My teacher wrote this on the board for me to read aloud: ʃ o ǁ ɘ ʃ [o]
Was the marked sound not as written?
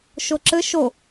no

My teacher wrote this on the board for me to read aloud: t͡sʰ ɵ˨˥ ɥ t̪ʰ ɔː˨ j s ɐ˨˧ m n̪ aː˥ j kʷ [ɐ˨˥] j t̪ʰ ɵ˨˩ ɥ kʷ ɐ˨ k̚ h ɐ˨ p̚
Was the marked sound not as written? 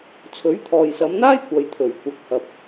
yes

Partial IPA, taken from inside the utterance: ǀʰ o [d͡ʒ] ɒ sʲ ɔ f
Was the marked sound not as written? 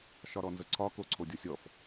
yes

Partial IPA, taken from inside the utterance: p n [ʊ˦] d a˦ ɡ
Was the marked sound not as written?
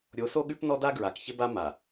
yes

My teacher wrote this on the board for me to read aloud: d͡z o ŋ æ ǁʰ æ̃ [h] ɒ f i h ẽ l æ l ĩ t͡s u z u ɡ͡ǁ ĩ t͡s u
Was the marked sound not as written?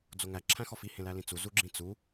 yes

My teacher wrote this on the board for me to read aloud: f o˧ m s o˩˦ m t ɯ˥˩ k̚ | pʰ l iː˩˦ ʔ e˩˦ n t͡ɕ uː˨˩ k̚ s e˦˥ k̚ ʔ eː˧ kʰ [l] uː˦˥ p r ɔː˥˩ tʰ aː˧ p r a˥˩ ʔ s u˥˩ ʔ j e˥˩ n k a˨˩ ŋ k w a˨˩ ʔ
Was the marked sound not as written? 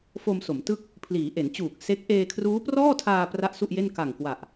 yes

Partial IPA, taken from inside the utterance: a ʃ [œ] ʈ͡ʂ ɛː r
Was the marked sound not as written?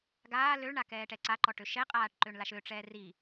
yes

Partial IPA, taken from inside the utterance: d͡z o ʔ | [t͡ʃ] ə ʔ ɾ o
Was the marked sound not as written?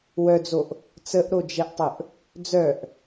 yes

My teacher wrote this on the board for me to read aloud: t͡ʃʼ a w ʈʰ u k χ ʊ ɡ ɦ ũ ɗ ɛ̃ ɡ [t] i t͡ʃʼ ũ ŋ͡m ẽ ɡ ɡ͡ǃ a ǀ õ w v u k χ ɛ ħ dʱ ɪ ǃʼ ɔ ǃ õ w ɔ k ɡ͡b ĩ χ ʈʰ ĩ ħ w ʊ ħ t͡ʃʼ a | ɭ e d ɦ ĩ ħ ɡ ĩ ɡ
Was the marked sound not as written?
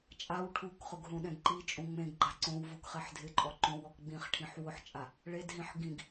yes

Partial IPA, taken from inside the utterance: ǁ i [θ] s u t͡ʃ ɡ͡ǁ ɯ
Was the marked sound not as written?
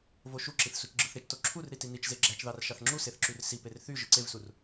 no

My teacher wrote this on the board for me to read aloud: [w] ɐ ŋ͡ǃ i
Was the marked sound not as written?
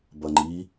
yes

